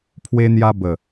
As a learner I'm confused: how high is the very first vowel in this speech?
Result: mid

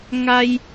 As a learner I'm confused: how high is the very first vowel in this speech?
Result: low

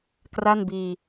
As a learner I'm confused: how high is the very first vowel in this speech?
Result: low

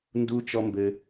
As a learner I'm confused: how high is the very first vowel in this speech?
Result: high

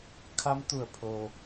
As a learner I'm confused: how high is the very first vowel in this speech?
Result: low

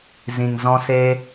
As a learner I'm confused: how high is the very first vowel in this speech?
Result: high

